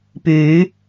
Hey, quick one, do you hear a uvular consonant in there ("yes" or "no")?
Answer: no